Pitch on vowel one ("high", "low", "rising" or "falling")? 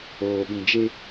low